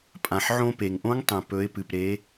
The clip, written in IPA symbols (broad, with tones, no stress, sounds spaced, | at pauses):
pʼ ã˩ ħ ʕ õ˧ p e˩ ŋ ʔ õ˧˥ ŋ tˤ ẽ˩ p ɵ˩˧ ɪ̯ p ɨ˩ p ɾ e˩˧